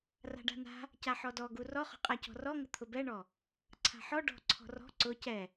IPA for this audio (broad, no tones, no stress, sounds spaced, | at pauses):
r a̤ ɖ a̤ n a̤ | c a ħ ɔ d ɔ ɡ u r ɔ χ ɔ̤ qʼ a c ɔ̤ r ɔ ŋ ʊ t̪ʰ ʊ b ɛ ɳ ɔ | ǀʰ a̤ ħ ɔ ɖ ɔ̤ ǀʰ ɔ̤ r ɔ̤ ǀ ʊ c ɛ